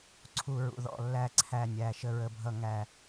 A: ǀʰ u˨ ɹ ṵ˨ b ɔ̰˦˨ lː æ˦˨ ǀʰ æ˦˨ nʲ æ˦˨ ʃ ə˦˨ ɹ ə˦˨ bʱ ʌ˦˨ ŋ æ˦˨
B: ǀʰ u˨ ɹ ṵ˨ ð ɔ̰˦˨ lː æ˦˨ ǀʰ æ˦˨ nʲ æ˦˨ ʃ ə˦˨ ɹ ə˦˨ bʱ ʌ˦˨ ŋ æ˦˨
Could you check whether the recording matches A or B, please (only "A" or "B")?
B